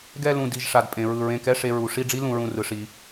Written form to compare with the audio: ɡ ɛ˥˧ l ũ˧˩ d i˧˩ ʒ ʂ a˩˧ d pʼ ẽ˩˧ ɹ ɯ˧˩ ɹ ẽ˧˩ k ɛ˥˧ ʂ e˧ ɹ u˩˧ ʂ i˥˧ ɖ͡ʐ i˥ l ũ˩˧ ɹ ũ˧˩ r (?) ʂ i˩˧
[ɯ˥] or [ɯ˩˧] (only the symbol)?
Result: ɯ˩˧